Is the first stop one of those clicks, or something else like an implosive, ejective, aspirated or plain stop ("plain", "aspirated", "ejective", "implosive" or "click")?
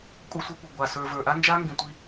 ejective